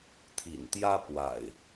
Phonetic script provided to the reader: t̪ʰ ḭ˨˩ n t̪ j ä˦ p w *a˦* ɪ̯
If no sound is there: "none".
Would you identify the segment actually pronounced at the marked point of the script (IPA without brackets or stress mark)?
a̰˨˩